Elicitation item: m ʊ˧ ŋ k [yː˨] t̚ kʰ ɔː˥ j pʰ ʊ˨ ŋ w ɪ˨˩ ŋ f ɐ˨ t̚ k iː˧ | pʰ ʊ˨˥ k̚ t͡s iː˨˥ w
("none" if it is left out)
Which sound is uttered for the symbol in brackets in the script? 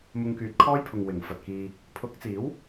yː˨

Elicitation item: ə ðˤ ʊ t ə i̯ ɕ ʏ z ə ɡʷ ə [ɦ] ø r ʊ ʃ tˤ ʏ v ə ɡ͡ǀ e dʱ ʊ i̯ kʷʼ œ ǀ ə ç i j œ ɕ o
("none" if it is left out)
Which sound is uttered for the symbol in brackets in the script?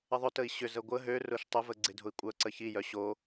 ɦ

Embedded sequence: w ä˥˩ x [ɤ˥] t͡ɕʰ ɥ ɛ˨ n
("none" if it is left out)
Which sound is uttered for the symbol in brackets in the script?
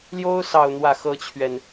ɤ˥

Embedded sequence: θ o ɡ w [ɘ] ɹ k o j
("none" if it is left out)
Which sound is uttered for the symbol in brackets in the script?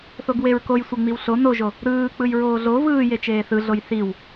e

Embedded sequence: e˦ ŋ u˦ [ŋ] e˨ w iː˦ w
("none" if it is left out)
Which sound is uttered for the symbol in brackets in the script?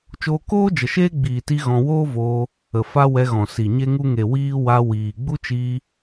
ŋ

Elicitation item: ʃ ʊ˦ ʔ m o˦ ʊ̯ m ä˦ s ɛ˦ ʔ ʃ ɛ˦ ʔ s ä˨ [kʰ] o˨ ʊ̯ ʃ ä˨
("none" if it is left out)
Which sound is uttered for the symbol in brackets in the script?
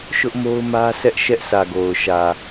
ɡ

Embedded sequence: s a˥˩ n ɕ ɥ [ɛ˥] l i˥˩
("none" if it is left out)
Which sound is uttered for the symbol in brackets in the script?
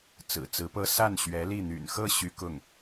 ɛ˧˥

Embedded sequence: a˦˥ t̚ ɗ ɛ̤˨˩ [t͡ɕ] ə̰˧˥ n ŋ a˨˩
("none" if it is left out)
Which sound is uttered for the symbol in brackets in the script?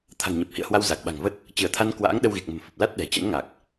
t͡ɕ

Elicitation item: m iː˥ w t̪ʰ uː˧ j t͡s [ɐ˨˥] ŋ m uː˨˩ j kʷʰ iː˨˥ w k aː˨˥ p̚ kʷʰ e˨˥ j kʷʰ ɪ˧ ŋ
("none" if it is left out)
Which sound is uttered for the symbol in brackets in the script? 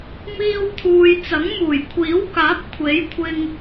ɐ˨˥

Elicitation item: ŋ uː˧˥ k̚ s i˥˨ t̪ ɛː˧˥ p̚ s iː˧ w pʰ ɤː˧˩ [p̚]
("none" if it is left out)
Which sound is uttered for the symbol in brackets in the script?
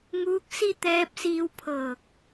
k̚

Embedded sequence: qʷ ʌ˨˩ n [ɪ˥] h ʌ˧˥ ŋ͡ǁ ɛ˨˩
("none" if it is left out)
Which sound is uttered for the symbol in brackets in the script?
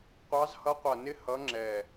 ɪ˥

